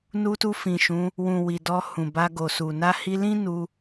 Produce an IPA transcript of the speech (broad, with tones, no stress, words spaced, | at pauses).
nu˧tu˧ fĩ˨ʃũ˨˦ | wũ˨ wi˨dɔ˧ hũ˨ba˧ɡo˨su˨ na˧hi˧lĩ˦ nu˧